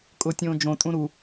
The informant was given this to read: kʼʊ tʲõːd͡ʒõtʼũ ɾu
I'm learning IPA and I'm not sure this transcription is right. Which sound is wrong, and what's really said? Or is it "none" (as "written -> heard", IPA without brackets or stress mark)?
none